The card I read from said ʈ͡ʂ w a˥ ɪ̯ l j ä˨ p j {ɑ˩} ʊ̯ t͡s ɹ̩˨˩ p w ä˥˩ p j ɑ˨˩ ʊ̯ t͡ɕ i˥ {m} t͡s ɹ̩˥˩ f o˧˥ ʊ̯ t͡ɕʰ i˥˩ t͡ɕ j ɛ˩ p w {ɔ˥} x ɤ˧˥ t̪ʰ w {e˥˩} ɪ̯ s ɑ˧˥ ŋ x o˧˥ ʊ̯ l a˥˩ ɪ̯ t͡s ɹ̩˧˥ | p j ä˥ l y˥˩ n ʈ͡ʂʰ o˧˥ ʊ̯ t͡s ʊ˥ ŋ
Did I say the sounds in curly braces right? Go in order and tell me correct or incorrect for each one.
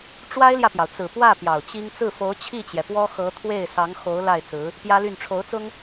correct, incorrect, correct, correct

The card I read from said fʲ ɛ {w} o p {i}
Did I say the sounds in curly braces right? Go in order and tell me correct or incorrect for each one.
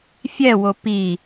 correct, correct

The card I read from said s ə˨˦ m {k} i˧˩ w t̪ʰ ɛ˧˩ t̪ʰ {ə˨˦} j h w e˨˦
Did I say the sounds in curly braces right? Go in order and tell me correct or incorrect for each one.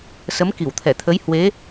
correct, correct

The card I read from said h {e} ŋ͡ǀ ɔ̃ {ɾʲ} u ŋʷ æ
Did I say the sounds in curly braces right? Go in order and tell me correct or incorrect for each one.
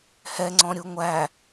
incorrect, correct

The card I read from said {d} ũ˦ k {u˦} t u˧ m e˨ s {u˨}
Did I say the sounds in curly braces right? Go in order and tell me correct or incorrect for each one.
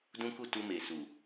correct, incorrect, correct

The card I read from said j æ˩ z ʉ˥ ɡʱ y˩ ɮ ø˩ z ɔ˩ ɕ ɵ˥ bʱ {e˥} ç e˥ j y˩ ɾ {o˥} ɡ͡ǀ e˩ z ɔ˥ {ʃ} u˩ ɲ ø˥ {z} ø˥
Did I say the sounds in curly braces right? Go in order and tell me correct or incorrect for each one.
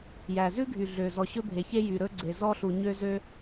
incorrect, incorrect, incorrect, correct

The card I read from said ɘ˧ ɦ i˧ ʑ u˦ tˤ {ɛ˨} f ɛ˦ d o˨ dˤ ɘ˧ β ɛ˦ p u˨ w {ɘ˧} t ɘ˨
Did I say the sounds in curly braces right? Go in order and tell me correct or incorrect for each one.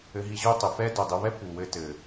incorrect, correct

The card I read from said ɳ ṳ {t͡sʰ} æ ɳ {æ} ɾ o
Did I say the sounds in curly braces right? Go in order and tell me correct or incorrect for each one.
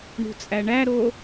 incorrect, correct

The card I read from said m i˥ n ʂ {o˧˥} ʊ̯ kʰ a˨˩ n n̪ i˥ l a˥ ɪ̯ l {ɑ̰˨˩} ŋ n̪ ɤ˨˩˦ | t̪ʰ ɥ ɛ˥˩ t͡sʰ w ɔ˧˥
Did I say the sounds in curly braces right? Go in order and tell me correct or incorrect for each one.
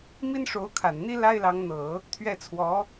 correct, incorrect

